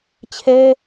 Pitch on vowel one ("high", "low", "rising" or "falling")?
high